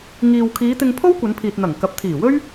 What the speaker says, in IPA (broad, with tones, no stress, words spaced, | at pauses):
ŋiː˧w kʰiː˨˧t̪ɪ˧ŋ pʰo˥wkʷɐ˨˧npʰiː˨t̚n̪ɐ˨˩ŋ kɐ˨˥p̚t̪ʰiː˨˩wɵ˥ɥ